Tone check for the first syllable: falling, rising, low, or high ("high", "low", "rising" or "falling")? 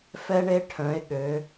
high